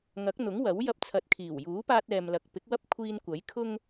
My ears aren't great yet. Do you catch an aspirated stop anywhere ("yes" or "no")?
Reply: yes